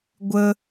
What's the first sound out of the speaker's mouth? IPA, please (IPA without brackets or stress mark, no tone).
ɡʷ